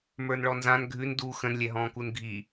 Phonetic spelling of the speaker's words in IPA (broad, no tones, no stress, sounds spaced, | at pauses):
m ə˞ n ɭ ɔ n z ã n ɡʱ ʉ n d u x ə̃ n lʲ ɛ ɦ ɔ̃ː k u n ɡʱ i